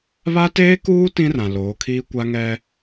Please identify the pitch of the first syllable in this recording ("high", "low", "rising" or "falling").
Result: high